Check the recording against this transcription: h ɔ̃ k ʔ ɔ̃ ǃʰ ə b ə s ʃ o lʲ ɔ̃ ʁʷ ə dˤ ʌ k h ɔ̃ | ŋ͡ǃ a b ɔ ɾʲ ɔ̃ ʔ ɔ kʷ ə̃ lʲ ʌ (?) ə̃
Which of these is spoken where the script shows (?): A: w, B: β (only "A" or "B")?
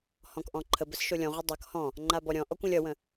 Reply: A